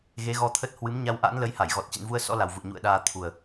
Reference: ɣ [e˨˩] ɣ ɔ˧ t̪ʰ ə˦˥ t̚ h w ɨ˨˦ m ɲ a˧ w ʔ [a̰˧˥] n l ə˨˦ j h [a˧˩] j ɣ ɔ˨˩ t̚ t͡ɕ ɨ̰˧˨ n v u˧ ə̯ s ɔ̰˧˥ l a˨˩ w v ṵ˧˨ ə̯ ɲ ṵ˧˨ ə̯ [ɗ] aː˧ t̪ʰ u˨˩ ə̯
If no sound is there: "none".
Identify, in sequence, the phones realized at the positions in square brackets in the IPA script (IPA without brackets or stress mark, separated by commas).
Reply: e˨˦, a̰˧˥, a˧˩, ɗ